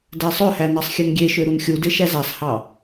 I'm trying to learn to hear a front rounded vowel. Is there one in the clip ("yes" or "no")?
yes